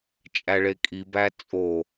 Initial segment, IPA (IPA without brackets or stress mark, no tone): t͡ʃʼ